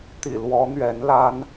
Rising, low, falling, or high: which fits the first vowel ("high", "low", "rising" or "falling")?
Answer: low